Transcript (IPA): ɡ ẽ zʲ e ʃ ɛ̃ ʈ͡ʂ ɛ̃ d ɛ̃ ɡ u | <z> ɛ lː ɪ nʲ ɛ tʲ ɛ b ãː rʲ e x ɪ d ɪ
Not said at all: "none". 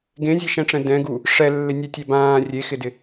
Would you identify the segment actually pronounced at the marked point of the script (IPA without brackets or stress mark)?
ʂ